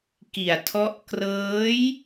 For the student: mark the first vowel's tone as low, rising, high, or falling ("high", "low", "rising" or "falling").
low